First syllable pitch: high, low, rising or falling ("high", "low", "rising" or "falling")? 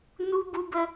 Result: high